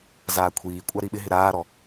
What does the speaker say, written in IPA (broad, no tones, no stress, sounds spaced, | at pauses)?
z aː kʷʰ iː kʷʼ a ɾ i ɓ ɪ ɦ ɪ ɾ aː ɾ ɔ